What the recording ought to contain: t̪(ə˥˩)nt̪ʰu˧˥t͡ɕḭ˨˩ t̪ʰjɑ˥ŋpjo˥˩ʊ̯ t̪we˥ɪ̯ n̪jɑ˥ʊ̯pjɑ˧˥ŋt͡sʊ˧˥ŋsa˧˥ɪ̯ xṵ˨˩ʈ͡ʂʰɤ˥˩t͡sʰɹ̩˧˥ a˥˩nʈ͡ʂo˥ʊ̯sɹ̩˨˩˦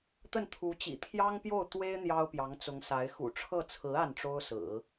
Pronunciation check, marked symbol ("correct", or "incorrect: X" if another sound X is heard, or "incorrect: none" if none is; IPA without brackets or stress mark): correct